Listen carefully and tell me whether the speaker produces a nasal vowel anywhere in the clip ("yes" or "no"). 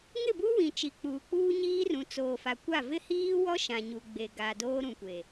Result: yes